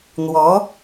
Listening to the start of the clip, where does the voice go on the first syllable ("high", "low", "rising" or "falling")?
rising